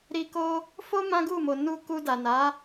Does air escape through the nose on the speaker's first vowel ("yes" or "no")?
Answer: no